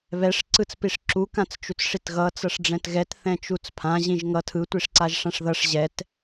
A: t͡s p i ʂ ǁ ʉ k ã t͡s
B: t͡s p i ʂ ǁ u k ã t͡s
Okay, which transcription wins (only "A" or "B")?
B